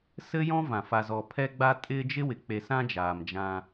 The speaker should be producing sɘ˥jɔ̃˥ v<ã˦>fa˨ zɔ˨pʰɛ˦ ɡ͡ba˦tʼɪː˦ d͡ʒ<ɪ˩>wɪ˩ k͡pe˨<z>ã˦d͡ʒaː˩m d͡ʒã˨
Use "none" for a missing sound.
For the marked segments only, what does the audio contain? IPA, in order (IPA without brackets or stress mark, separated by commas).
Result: ã˩, ɪ˥, s